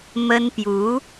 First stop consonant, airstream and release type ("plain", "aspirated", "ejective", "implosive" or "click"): plain